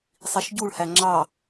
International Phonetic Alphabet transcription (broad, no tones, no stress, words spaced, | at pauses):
sˤiʃɟuɭhæ ŋ͡ǁɑ